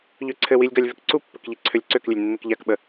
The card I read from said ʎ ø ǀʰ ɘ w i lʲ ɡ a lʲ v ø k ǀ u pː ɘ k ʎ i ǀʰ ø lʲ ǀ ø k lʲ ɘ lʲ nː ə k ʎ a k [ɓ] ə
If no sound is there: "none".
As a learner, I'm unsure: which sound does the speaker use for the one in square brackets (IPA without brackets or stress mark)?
ɓ